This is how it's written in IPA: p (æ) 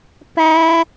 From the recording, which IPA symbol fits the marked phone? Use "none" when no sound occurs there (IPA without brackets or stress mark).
æ